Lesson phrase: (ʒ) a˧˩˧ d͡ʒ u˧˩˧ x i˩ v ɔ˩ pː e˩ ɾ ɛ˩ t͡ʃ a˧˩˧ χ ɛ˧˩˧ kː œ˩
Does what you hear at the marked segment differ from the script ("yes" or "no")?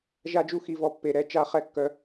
no